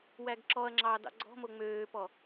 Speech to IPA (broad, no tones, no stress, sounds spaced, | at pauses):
w æ ɡ ǁ ɔ ɐ̯ ŋ͡ǁ ɑː d ɑ̰ ɡ͡ǀ ɔ̤ m o ŋ͡m øː p ɔ